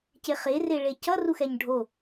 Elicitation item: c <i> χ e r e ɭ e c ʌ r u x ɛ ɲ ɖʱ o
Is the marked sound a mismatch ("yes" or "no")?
yes